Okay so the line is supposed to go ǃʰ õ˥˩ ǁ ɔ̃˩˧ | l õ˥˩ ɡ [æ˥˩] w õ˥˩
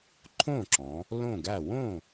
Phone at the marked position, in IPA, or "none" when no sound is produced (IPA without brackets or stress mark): æ˥˩